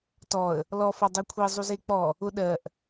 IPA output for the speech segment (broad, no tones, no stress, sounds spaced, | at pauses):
t ɔ ə̯ | l ɔ f ɔ dˤ e kʷʰ i zˤ u z e k͡p ɔ | ʊ ɗ ɜ ʔ